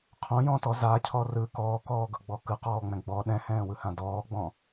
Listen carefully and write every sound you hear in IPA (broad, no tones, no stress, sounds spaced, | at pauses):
qʰ õ j ɔ̃ t ɔ z a cʰ ɔ r ɯ k ɔː k ɔː ɡ ɤ ɡ͡b ɔ k ɯ q ɔː ŋ͡m ɛ̃ ɡ͡b ɔ ɗ ɛ̃ h ɛ̃ː w ɯ h ã d ɔː ɡ͡b ɔ̃